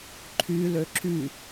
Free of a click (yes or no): no